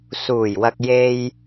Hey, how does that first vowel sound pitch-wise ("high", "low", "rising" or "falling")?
low